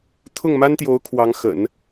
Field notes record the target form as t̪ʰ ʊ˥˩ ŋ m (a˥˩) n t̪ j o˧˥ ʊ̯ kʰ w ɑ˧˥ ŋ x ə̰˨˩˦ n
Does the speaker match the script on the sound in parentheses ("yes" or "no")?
no